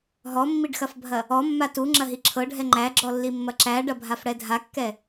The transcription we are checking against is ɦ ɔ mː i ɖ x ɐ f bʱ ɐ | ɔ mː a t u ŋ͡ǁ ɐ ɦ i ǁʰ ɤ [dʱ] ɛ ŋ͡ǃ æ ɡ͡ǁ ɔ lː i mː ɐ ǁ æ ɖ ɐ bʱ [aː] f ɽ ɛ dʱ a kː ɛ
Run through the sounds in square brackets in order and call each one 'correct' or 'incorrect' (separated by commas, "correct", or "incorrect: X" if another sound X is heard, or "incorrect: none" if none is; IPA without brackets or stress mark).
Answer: incorrect: ɖʱ, incorrect: a